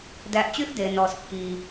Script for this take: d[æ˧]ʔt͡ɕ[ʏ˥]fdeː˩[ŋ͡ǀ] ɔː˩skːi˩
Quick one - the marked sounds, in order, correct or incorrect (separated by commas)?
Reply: correct, incorrect, incorrect